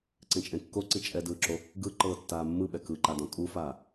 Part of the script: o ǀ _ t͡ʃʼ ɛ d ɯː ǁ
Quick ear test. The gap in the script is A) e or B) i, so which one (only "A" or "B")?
B